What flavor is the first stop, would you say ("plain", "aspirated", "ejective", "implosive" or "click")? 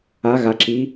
click